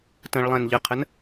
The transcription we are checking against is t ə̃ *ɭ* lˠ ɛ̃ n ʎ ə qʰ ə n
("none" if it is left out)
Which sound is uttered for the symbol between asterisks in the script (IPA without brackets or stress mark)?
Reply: ɭ